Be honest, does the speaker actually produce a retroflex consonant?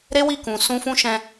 no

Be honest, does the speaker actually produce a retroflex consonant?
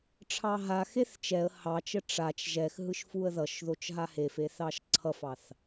yes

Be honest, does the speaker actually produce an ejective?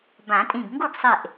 yes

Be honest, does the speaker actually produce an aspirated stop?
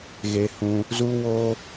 no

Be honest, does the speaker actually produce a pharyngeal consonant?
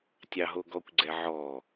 yes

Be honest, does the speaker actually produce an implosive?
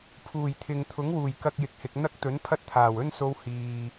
no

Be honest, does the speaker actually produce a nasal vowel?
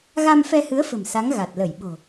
no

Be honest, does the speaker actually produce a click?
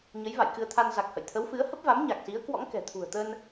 no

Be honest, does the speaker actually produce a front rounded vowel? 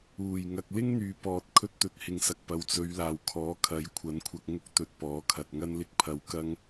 yes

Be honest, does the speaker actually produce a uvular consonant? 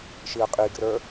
yes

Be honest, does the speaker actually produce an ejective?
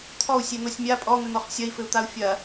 yes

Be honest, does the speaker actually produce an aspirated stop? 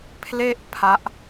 yes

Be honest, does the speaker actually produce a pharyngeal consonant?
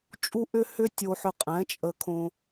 yes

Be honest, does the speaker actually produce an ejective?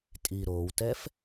yes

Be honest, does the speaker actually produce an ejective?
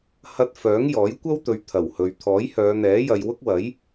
no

